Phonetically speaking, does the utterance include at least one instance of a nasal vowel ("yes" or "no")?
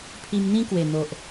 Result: yes